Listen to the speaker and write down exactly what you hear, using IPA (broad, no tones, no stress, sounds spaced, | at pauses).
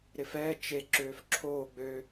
ɾ ɪ f ɛː t͡ʃ e ǁ øː f ǁʰ oː ɡ͡b ø